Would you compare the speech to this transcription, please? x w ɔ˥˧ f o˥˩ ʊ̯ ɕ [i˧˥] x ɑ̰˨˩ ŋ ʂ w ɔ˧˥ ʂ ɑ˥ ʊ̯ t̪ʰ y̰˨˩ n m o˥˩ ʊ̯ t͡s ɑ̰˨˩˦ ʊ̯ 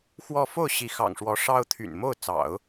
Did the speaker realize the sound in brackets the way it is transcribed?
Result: yes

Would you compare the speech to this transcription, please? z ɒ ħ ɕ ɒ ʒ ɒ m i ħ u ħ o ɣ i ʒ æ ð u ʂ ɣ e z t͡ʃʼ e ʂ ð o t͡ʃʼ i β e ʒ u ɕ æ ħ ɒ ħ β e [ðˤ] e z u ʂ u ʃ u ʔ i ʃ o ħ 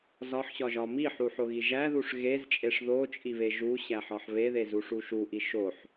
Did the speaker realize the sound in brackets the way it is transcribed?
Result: no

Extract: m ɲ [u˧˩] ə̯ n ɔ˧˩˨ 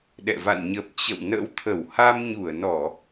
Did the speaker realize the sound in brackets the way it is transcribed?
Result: yes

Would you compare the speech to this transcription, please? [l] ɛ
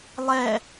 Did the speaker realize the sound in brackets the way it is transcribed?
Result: no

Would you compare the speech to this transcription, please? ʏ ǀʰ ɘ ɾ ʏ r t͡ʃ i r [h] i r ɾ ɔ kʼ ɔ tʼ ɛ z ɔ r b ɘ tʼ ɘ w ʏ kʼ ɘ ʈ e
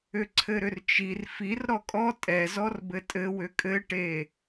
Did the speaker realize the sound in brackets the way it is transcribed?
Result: no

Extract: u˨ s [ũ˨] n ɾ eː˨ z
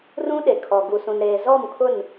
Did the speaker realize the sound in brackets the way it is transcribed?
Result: yes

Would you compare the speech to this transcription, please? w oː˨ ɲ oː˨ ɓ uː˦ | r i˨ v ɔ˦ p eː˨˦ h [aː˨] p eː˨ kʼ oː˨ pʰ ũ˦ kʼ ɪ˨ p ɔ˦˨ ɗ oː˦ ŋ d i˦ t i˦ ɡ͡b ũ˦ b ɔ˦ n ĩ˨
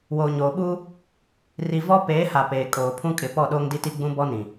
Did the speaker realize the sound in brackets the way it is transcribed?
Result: no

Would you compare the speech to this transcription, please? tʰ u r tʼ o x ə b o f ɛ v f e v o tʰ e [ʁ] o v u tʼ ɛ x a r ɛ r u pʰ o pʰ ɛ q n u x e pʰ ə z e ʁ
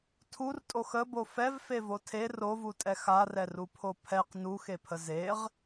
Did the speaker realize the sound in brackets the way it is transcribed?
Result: no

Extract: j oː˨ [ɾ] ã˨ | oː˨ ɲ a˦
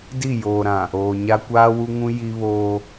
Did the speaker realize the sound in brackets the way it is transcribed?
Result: yes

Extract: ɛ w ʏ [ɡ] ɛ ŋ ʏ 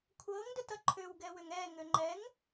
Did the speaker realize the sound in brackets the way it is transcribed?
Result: no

